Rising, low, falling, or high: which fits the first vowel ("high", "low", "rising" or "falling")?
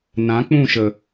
rising